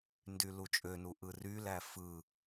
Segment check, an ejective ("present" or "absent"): present